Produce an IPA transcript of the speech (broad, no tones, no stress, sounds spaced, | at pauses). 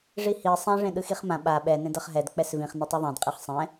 ʐ i h i sˤ ɛ̃ ʐ ẽ ɗ ɯ x i χ m ã ɓ a ɓ ɛ n ẽ d ʌ χ ɦ ɛ d k͡p ɛ s v ĩ χ n ʌ tˤ i ðˤ ɛ̃ d qʼ e χ sˤ ɛ̃